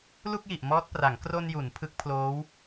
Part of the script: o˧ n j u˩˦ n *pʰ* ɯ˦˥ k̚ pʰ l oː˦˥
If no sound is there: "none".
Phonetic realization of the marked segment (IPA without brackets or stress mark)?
pʰ